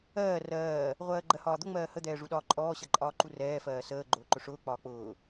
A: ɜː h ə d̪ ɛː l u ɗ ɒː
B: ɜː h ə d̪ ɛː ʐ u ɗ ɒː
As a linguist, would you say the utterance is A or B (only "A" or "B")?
B